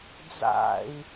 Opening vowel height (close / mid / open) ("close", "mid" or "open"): open